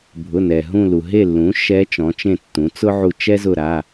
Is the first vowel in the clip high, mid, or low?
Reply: high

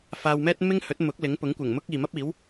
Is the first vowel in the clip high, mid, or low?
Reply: low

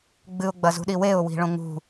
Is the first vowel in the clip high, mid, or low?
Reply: high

